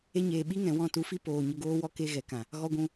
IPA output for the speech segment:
e˧ ɲ eː˨ ɓ i˦ ŋ ɛ̃˨ w ɔ̃˧ t u˨˦ f i˦ p oː˨ ɲ ə˧ ɡ oː˦ w ɔ˦ k e˦ ɣ ɛ˨ k ã˨ | ɣ ɔ˧ ɡʷ ũ˧

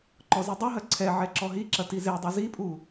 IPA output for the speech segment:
ǃ ɔ z i dˤ ɘ ɦ ɐ ǀʰ ɛ ʕ ɛ ǁ ɔ ɦ i ǁ ɐ t i z e dˤ u z i pʼ u

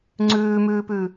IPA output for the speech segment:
ŋ͡ǀ ʉː m ʉː p ʉ

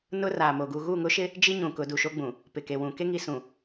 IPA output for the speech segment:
n ʊ˦ r a˨ m o˨ ɡ u˨ ɣ u˦˨ ŋ ʊ˦ ʃ ɪ˦ | d͡ʒ i˦ ɲ ũ˨ k ʊ˨˦ d u˨ ʃ o˦ ɡ͡b ũ˨ | p ɪ˨ k e˨ w ũ˨ k e˦ ŋ i˨ s ũ˨

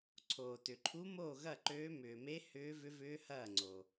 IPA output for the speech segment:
ǀʰ oː˩ t ʏ˩ ǃʰ u˧˥ m oː˥˩ ɣ ɐ˥˩ ǃ øː˧˥ m ʏː˩ m e˧˥ h ʏː˧˥ v ʏ˧˥ v ʏː˧˥ h ɐː˥˩ ŋ͡ǀ o˩

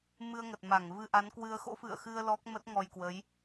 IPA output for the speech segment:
m ɨ˧ ə̯ ŋ ə˨˩ t̚ m a˧˩ ŋ v ɨ˧ ʔ a˨˦ n k w ɨ˧ ə̯ x o̰˧˥ f ɨ̰˧˨ ə̯ x ɨ˧ ə̯ l ɔ˦˥ k̚ m ə˦˥ t̚ ŋ ɔ˧ j k w ə˨˦ j

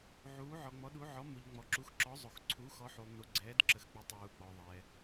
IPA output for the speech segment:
ʕ uː˨˦ ʕ ɔ˨ ŋ͡m ɔ˨˦ ɗ u˨˦ ʕ ɔ˨˦ m u˨ ʎ ŋ͡m ɔ˨ ǁ u˨˦ x ǁ ɔ˨˦ zˤ o˨ x ǀʰ u˨˦ x ɔ˨˦ ħ u˨ lˠ n u˨ ɡ͡ǀ ɛː˨˦ d ǁ ə˨˦ x k͡p ə˨˦ tˤ uː˨ k͡p ɔ˨ ðˤ ɛː˨

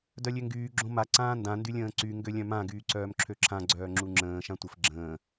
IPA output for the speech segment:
d œ lʲ ø ŋ ɡ yː ɡ͡ǁ õ m a ǀ ãː n d ã n d y lʲ ə̃ː ǀ y ŋ ɡ ø lʲ œ̃ m ã ɡ yː ǀ œː m ǁʰ ø ǁʰ ã ɡ͡ǀ œː ŋ͡ǁ u ŋ͡ǁ ə̃ː ʃ ã tʷ ə f ɡ͡ǁ ə̃ː

